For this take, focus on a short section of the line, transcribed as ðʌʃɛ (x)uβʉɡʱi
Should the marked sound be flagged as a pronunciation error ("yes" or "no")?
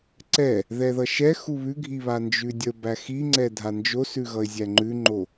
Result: no